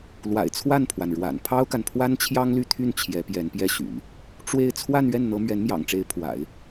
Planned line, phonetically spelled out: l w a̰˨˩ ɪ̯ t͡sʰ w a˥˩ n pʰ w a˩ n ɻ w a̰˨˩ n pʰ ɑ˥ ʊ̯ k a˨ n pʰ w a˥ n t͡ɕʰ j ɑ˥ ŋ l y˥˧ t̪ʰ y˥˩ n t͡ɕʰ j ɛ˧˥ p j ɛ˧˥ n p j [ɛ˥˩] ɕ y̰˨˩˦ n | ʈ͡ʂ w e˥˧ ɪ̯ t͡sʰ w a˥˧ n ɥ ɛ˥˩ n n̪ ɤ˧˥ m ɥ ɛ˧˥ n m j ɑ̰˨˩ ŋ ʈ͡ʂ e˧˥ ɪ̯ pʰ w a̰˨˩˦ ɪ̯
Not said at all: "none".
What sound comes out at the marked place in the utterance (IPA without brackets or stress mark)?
ɛ˥˩